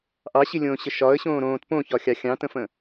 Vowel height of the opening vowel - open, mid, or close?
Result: open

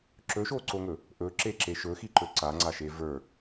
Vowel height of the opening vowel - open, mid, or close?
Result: mid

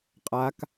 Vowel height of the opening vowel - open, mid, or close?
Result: open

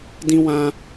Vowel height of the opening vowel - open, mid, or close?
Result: close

